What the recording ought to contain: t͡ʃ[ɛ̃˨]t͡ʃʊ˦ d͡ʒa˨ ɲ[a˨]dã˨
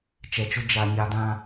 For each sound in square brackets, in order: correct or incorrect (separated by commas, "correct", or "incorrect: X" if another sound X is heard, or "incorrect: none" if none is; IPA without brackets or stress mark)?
incorrect: ɛ˨, correct